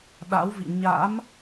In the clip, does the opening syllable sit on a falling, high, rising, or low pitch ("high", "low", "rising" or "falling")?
rising